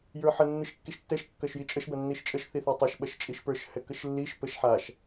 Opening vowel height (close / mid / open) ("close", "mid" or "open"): mid